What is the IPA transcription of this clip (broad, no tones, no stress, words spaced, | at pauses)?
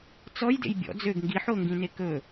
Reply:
t͡sɔjdḛj bʲɔ̰ d͡zøɡ ŋɡiħoŋɡĩne kɵ